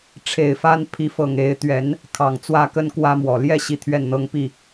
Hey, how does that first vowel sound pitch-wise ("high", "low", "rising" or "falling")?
low